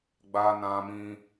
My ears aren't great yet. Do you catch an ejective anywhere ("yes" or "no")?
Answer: no